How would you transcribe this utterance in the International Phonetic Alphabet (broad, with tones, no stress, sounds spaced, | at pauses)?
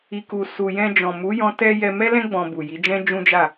i˧ k u˨ s u˨ j ɛ̃˧ d͡ʒ ɔ̃˨ m u˨˦ j ɔ̃˦ t ɛ˦ j ɛ˧ m ɛ˦ l ɛ̃˦ ɡ͡b ɔ̃˧ b u˨ j i˨˦ d͡ʒ ɛ̃˦ d͡ʒ ũ˦ d͡ʒ a˦˨